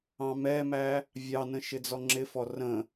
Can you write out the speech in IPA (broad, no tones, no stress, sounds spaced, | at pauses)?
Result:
ɑ̃ m ɛ m æ | vʲ ɑ n ə̃ ʃ ɪ d͡z ɔ ŋ͡ǁ ɪ f ɔ r ə̃